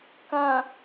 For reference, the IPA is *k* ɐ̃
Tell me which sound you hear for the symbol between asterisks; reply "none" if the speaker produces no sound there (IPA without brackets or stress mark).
k